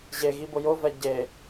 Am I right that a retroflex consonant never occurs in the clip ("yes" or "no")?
yes